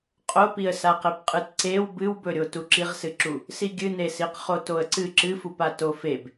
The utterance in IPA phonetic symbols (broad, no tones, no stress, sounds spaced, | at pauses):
qʼ o p i ə̯ s a q e p qʼ ɨ t ǀ e w b ɨ w b ɵ ɾʲ o t u ǁ i ʁ s ɨ ǁ u | s i ɡʲ ɨ n e s i q χ o t o ə̯ ǀ ɨ ǁ ɨ f u p a t o f e b